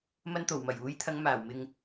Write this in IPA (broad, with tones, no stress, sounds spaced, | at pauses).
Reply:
m ɐ˧ n t̪ o˨˩ w m ɐ˨˩ j uː˨˥ j t̪ʰ ɐ˨˧ ŋ m aː˨˩ w m ɪ˨ ŋ